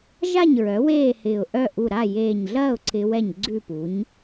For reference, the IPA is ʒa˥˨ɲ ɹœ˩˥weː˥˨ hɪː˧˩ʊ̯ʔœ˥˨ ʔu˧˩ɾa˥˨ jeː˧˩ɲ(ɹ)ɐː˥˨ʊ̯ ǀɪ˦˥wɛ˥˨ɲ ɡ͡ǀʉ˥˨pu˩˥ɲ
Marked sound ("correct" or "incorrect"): incorrect